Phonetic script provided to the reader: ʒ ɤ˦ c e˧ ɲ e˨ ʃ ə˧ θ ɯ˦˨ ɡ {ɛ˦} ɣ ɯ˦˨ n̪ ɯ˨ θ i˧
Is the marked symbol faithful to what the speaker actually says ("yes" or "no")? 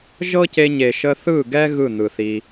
yes